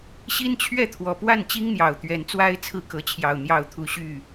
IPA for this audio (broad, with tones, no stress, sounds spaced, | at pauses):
ɕ i˦ n t͡ɕʰ ɥ ɛ˥˨ t̪ʰ w ɔ˨˩ p w a˥˨ n t͡ɕ i˦ ŋ n̪ j ɑ˨˩ ʊ̯ t̪ ɥ ɛ˨˦ n t͡s w a˦ ɪ̯ t͡sʰ ɹ̩˦ k ɤ˨˦ t͡ɕʰ j ɑ˨˩ ʊ̯ n̪ j ɑ˥˨ ʊ̯ t̪ʰ u˦ ɕ y˥˨